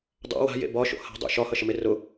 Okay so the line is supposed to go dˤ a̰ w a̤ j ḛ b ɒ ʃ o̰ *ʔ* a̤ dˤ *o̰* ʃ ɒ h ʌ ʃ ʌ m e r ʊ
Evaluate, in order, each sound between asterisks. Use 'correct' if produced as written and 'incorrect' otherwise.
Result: incorrect: h, correct

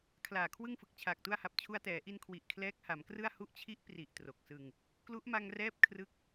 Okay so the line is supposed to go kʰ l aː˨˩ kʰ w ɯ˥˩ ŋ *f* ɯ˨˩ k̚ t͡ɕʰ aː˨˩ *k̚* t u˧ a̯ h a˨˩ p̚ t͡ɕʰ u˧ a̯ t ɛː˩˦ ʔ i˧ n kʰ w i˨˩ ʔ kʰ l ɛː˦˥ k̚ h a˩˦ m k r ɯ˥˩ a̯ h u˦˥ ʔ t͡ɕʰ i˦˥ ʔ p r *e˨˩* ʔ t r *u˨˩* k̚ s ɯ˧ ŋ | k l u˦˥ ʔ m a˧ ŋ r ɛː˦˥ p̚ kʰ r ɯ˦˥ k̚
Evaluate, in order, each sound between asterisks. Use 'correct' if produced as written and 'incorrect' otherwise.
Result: correct, correct, incorrect: i˨˩, incorrect: o˨˩

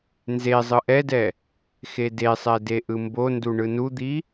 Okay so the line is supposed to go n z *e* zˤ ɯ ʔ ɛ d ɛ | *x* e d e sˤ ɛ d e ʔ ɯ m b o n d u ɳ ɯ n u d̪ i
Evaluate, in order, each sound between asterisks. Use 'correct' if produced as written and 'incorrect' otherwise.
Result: correct, correct

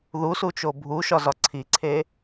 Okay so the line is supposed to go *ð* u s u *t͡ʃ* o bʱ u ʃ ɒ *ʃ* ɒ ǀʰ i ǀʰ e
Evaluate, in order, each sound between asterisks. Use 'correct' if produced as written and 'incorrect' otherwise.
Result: correct, correct, incorrect: z

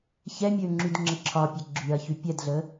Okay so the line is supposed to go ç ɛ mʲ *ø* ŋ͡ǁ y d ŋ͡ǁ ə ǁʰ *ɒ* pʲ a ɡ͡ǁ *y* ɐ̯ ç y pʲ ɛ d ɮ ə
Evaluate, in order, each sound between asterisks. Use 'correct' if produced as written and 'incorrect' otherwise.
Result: correct, correct, correct

